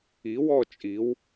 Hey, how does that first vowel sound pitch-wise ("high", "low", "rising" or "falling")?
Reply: rising